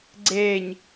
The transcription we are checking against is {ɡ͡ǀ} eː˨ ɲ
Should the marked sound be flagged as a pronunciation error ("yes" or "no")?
no